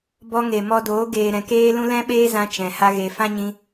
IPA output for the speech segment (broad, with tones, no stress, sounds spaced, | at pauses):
b ɔ˧ ŋ e˨ m ɔ˧ d oː˨˦ ɡ eː˨ ɾ ɛ̃˨ k eː˦ l ũ˦ l ɛ̃˦ ɓ eː˦ z ã˧ t͡ʃ ɛ̃˨ h a˦ ɣ e˧ f ã˦ ɲ ĩ˧